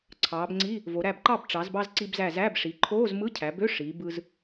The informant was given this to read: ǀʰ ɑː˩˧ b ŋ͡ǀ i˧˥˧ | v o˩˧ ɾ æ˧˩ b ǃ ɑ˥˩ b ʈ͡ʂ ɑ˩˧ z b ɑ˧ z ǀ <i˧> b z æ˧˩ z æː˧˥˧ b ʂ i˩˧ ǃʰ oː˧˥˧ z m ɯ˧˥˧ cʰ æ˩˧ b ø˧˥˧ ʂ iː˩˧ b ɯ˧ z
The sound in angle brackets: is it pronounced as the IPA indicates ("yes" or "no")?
yes